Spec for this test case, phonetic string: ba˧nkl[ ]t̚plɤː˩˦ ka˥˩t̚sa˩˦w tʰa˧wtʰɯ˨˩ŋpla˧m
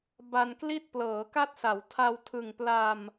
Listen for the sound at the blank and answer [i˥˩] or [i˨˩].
i˥˩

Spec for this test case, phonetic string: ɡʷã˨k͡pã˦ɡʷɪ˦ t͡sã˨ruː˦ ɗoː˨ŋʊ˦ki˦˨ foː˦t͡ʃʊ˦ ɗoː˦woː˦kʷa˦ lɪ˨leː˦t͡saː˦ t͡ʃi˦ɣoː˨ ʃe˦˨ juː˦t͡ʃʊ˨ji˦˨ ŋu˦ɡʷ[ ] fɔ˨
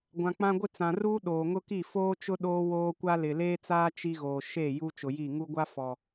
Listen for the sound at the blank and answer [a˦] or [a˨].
a˦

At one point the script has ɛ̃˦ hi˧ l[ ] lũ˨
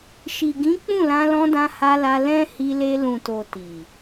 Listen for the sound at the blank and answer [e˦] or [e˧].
e˧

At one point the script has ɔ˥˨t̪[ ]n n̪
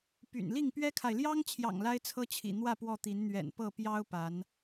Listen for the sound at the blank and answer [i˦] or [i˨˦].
i˨˦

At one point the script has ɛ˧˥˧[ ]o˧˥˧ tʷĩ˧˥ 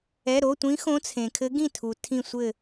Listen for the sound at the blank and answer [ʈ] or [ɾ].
ɾ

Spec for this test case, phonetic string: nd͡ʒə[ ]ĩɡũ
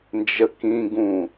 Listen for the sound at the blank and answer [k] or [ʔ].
k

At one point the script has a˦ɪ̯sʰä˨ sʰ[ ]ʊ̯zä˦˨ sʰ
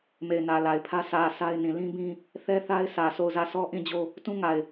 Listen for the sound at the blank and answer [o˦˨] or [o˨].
o˦˨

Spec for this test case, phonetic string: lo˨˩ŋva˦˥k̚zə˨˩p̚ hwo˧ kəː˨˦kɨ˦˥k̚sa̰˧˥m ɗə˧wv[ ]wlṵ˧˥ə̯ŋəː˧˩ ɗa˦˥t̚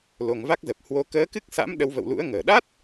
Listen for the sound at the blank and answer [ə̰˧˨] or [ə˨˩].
ə̰˧˨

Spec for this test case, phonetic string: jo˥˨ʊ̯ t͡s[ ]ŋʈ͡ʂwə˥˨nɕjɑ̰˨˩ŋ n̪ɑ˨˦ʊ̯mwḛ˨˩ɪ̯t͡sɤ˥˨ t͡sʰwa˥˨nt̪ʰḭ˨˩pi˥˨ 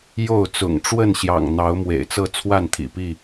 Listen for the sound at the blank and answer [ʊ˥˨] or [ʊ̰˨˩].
ʊ̰˨˩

